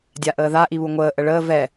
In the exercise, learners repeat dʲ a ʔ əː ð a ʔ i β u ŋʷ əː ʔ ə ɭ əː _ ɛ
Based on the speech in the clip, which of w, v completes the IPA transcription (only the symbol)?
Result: v